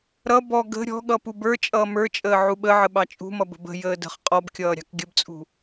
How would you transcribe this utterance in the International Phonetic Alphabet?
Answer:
ɾʌ bɔ ɡə̤ ɾʲɔ̤ɠʌ pubə˞t͡ʃʼʌː mə˞t͡ʃʼəː ʕuɓəʕə ɓɑt͡ʃʼṳmʌ bə̤bə̤jəː də̤χ qʼɔbkʲʌː ɾʲɑ̤kɡʲəbt͡sʼṳ

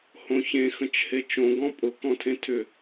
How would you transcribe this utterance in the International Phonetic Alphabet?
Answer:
hõçẽ xə̃t͡ʃhet͡ʃõ ɡɔ̃pʼʊ kɔ̃tʰẽtʰʏ

